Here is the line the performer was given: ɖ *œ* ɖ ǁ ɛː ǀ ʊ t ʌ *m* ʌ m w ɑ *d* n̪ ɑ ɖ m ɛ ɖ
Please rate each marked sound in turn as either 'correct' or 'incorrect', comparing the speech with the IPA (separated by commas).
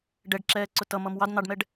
incorrect, correct, correct